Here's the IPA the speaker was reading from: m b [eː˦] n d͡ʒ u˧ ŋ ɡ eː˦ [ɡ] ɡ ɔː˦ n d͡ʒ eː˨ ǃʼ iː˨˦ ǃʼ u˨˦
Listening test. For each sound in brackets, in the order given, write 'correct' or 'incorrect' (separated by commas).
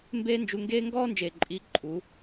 correct, incorrect